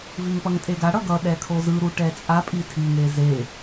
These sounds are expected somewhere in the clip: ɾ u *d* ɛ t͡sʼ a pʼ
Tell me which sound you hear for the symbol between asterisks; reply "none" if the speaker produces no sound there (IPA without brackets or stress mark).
ʈ